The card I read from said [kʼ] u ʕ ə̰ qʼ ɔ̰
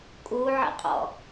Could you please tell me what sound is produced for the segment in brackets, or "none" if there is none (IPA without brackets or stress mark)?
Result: kʼ